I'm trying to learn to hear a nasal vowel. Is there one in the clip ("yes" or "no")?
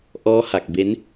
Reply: no